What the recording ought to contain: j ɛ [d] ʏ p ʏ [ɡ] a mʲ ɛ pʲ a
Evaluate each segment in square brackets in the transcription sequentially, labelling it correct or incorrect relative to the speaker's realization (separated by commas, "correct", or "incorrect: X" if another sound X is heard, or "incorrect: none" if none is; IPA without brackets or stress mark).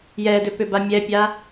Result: correct, incorrect: b